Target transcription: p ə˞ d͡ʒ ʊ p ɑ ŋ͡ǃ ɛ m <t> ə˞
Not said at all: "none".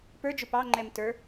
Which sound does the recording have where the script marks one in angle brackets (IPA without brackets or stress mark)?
t